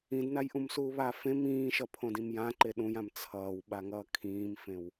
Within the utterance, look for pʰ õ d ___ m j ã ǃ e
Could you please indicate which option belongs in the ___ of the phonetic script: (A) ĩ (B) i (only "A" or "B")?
A